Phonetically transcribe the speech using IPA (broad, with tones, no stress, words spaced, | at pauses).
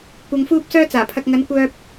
kʷɐ˧ŋfuː˥p̚sœː˥ t͡saː˨˩pʰɐ˧k̚ ŋɐ˨˧nkʷœː˧p̚